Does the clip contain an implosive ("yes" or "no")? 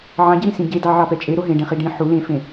no